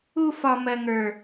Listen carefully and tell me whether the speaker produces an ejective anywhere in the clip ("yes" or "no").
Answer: no